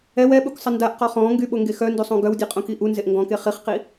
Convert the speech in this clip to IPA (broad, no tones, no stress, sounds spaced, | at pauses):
ɛ w ɛ ɓ u k sˤ ə n d a ʔ q ɔ χ ɔ̃ː ŋ ɡ y ɓ o ŋ ɡ e x œ n d u sˤ õ ɡ œ w dʲ e qʼ õ k i ʔ u n z e ʔ ŋ ɡ ɔ̃ k e χ i χ q i